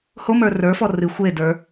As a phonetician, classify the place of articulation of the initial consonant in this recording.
glottal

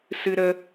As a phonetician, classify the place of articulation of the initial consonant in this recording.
alveolar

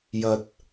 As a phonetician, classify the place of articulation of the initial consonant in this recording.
palatal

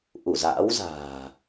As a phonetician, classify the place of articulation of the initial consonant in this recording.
glottal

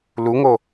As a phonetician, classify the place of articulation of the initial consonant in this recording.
alveolar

